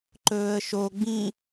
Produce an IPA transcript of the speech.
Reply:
ǃɵːə̯ʃoɡ͡bĩ

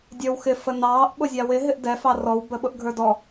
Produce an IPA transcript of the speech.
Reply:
dʲə˞wxɪ fənɑːʔ ɓʊzʲɑwɪ ɦɪʔdɛ fɑrɔw bəɓʊʔɡʱə˞dɔ

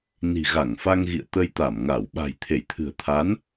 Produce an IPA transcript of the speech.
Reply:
ni̤˨˩ɣa˧˩ŋfa˧ŋɣḭ˧˨ə̯ t̪ə˧jt̪a˧˩mŋa˧˩w ɓa̤˨˩jt̪ʰe˧˩jt̪ʰɨ̤˨˩ə̯t̪ʰa˨˦n

